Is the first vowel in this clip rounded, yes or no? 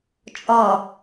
yes